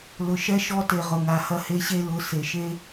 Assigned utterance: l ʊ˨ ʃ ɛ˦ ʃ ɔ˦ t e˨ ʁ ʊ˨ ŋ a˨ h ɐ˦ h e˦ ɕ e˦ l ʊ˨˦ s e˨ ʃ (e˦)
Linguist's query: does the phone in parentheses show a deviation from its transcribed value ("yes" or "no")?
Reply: no